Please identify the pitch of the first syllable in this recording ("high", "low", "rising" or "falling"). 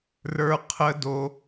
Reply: high